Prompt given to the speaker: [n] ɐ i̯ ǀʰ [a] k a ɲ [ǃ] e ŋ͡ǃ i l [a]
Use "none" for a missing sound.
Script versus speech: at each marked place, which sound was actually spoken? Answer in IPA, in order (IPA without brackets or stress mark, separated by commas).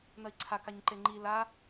n, a, ǃ, a